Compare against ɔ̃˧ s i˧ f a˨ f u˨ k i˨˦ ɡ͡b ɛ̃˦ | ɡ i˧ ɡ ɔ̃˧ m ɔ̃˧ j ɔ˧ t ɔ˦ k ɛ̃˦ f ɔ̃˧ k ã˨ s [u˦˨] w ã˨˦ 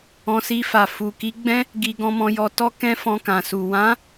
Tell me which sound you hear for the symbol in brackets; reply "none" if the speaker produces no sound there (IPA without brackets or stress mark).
u˨